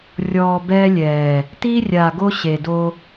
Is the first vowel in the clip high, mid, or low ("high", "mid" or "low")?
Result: mid